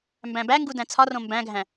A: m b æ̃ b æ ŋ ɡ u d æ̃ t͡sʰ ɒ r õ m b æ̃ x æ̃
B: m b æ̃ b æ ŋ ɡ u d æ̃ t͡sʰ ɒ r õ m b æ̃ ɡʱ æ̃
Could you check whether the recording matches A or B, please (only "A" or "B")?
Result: B